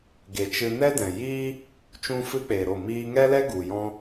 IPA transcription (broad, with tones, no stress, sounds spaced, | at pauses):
ɡ e˨ t͡ʃ ɨ˧ n ɛ˦ d ɛ̃˨ j iː˦ | t͡ʃ ũ˦ f ɨ˦ k͡p e˨ ɾ o˦˨ m iː˧ ŋ ɛ˦ l ɛ˦ ɡ u˨ j ɔ̃˦